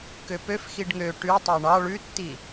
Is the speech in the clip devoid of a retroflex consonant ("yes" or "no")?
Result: no